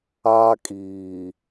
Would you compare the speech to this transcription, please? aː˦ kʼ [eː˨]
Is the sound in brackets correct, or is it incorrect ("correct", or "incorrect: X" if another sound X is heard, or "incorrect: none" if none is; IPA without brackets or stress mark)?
incorrect: iː˨